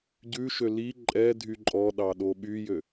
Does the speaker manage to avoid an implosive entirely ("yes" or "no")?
no